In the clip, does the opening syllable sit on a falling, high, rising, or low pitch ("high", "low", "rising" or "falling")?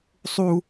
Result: high